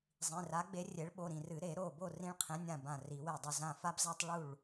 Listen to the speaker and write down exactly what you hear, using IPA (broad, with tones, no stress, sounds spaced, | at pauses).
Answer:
zˤ ĩ˩˧˩ r a˩˥ ɡ͡b e˩˥ rʲ e˩˥ ɭ ɓ o˩˧˩ ɾ ĩ˧˩ r ɨ˨˩˦ ɾ e˨˩˦ ɾ o˧˩ b o˥˩ r ĩ˦ ɭ qʰ ẽ˩˥ nʲ ã˧˩ b ã˧˩ r i˨˩˦ w e˧˩ dˤ ɵ˥˩ z ã˧˩ f a˦ b z a˦ tˤ ɭ u˥˩ ɭ